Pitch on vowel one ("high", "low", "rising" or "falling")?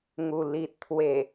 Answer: low